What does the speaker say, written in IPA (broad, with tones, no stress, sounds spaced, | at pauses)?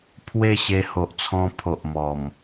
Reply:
pʰ w e˥˧ ɕ e˧ h o˨ ʔ t͡sʰ ɔ̃˧ pʰ o˨ ʔ m ɔ˨˩ m